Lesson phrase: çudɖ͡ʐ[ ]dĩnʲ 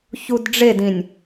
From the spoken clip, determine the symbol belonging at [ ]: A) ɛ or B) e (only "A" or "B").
B